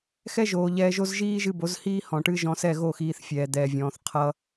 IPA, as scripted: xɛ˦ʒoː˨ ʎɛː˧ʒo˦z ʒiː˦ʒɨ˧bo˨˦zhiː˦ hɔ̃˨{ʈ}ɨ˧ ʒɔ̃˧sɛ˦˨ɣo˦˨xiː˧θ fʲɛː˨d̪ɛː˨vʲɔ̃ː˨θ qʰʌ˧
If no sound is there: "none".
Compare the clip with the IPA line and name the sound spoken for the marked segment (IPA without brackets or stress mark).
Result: ʈ